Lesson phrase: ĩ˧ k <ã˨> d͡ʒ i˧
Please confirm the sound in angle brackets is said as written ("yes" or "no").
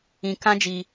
no